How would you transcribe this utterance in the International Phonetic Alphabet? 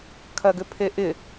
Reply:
kʰ ɐ ɡ ʏ pʰ e ʔ ɪ

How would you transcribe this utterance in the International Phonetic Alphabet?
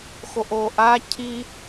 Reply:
x o ʔ o ʔ a cʰ i

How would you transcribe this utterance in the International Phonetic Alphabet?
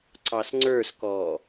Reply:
ǀ ɑ s ŋ͡ǀ ə˞ s k ɔː

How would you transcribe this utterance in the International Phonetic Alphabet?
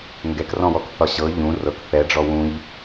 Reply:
ŋ ɡ ɛ k r ɔ̃ w ɔ k θ ɒ ɕ ɤ ʎ ũ r ɤ k θ ɛ ɖ͡ʐ ɔ w ũ ʎ

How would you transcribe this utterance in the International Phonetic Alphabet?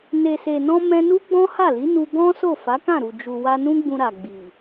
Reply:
n e˨ s e˨ n ɔ̃˧ m ɛ̃˧ n u˦ ɡ͡b ɔ̃˦ h a˦˨ l i˨˦ n u˧ ɡ ɔ̃˦ s o˦˨ f a˨˦ k ã˦˨ ɾ u˨ d͡ʒ u˨ w a˧ n ũ˦ ɡ͡b ũ˧ ɾ a˨ ɡ͡b i˨

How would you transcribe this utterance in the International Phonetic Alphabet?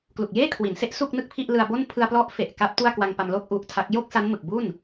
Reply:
k l u˨˩ k̚ j eː˥˩ kʰ w i˩˦ n s e˦˥ ʔ s u˥˩ k̚ n ɯ˥˩ k̚ pʰ i˥˩ ʔ l ɯ˧ a̯ b o˥˩ n pʰ ɯ˧ a̯ p l ɔ˦˥ ʔ f e˨˩ ʔ k a˦˥ p̚ t u˥˩ a̯ k w a˧ ŋ p a˧ m l o˥˩ k̚ ʔ u˦˥ ʔ tʰ a˦˥ k̚ j o˥˩ k̚ s a˦˥ n m ɯ˨˩ k̚ b u˥˩ n

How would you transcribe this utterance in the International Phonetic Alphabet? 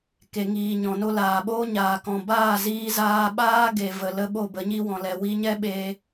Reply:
k e˨ ŋ iː˨ ɲ ɔ̃˨ n o˧ l aː˨ ɓ oː˦ ɲ aː˨ k ɔ̃˨ b aː˦˨ z iː˧ z aː˧ ɓ aː˦ ɡ e˨ v ə˨ l ə˧ ɓ o˦˨ b ə˨˦ ɲ i˦ w ɔ̃˨ l ɛ˨ w i˧ ɲ ɛ˦ ɓ e˧

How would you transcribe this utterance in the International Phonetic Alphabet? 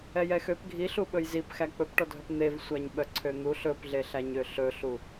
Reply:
ɛ j ɛ x ø p ɡʱ i ɬ u ɓ ɵ j z i p x æ k͡p ɵ p ʈ ɔ dʱ œ p n̪ e v sʷ æ ɲ ɓ œ ǀʰ ø n̪ u ɬ ɵ p ɮ e ɬ æ ɲ ø ɬ ɵ ɬ u

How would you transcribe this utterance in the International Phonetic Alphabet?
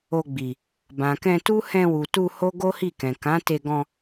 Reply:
o˧ ɡ͡b i˨ | b ã˨ k ɛ̃˧ t u˦ h ɛ̃˧ w u˨ t u˧ h o˦ ɡ o˦ h i˦˨ k ɛ̃˨ k ã˨˦ t e˧ ɡ ɔ̃˧

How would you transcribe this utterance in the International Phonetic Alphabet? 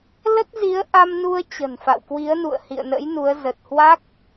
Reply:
l ə˦˥ t̚ z i˨˦ ə̯ ʔ a˧ m n u˧ ə̯ t͡ɕ ə̤˨˩ n f a̰˧˨ w k w i˨˦ ə̯ n ṵ˧˨ ə̯ h ḭ˧˨ ə̯ n ə̰˧˥ j n u˨˦ ə̯ z ə˨˩ t̚ h w a˦˥ k̚

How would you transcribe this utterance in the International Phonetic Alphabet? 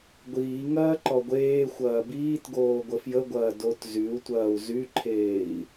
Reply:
ɡʷ iː ŋ ɐː ǃ ɔ ɡʷ eː xʷ ɐː b iː t ɡ oː ɡʷ ə f j ə ɡʷ ɐː d o t z y u̯ tʷ ɐː u̯ z y ǃʰ eː i̯

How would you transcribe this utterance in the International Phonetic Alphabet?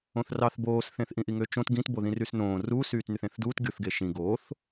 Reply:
õ θ r ɑ θ b oː s θ ẽ θ ʔ ĩ ʔ i ŋ ø t͡ʃ õ t ɡ ĩ t b o ð ĩ r y s n õː r uː s yː t n y θ ẽ θ d uː t ɡʲ o θ ɡ e ʃ ĩ ɡ oː θ

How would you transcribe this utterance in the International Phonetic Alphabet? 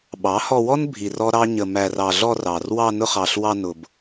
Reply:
ɓ ɑ˨˦ h ɔ˧ w ɔ˦ n bʱ i˧ r ɔ˦ ɾ ɑ˦ ɲ ə˧ m æ˧ r ɑ˧ ɮ ɔ˧ r ɑ˨ r w ɑ˧ n ʊ˧ χ ɑ˨ ɬ w ɑ˧ n ʊ˨ b

